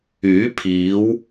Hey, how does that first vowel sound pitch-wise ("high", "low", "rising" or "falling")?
rising